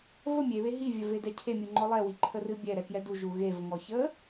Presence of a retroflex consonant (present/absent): absent